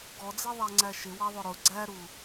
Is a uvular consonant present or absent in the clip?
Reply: absent